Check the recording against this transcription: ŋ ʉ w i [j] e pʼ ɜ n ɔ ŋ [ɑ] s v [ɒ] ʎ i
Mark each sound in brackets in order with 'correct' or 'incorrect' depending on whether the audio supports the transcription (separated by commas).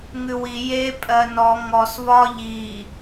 correct, incorrect, correct